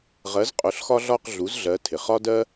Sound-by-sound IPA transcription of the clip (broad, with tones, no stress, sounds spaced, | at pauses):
ʁ ɜ˩˥ z qʼ ʊ˩˧ ɬ x ɒ˦ ɮ ɒ˦˨ q ɮ u˩˥ z ɮ ɜ˩˧ tʰ ɪ˩ χ ɒ˦ d ɜ˦